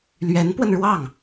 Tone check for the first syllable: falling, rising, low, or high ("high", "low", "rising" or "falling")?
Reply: rising